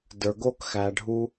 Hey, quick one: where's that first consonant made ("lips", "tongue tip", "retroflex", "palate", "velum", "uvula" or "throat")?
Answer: tongue tip